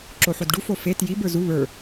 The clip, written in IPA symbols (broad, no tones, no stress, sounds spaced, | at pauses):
ǁ o ħ o d ɖ u f o f e t j i b ə˞ z u β ə˞